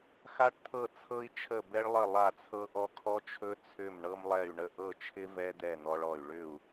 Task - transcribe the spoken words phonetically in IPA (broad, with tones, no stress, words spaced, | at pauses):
xa˧ʈt̪ʰɤ˧˩t͡sʰɤ˧i̯t͡ʃʰə˧˩ bɛ˧ɭlˠə˧˩ lˠa˧˩t͡sʰɤ˧ʔɔ˧ kʰɔ˧t͡ʃʰɵ˧ t͡sʰʏ˧˩m ɳɤ˧mlˠɛ˧˩y̯ɳə˧˩ ʔɤ˧˩t͡ʃʰɪ˧ vɛ˧d̪ɛ˧˩ n̪ɔ˧ɭɔ˧˩y̯ ɭʏ˧˩u̯